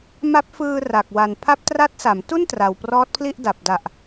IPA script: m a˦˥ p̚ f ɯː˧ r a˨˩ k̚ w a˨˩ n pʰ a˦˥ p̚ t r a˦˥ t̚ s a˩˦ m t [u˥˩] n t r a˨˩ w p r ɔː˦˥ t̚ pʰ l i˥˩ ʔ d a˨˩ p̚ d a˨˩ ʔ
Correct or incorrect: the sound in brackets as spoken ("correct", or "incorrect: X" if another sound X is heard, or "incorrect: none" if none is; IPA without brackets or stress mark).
correct